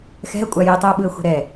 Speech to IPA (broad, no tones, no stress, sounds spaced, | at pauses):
x ɛ̤ ə̯ kʷʼ a j i tˤ i ə̯ ɓ ɯ ə̯ xʷ ɛ̤ ɾ ɛ